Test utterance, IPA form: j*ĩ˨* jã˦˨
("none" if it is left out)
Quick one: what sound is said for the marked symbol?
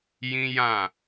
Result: ĩ˦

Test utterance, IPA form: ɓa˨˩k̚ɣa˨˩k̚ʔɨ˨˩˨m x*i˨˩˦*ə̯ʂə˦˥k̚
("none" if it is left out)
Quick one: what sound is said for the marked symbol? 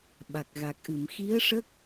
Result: i˧˥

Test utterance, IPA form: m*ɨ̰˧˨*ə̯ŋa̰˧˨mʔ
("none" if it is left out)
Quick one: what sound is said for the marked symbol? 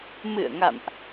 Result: ɨ̰˧˨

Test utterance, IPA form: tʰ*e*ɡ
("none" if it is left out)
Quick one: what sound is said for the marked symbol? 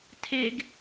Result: e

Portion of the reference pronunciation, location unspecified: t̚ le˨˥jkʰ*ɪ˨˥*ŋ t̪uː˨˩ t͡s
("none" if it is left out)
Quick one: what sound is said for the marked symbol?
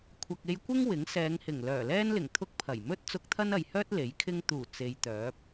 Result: ɪ˥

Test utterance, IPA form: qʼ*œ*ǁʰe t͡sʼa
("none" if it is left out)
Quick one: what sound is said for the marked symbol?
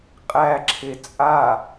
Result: æ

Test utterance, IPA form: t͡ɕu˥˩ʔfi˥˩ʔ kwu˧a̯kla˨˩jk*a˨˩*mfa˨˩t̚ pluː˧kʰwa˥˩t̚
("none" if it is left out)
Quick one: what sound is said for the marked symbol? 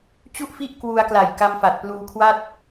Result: a˧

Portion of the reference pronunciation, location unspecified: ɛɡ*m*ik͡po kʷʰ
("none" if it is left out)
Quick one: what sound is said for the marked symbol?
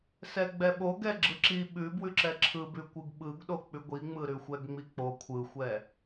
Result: ŋ͡m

